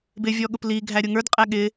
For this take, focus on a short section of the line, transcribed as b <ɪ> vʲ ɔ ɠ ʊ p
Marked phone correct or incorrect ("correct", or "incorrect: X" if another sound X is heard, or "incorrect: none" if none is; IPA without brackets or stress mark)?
correct